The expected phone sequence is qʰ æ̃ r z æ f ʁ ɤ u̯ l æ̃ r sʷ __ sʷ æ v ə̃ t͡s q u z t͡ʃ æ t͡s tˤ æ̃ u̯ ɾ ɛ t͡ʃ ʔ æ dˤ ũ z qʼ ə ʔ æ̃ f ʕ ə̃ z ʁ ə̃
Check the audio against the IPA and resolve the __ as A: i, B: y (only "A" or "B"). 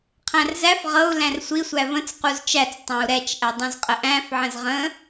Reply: A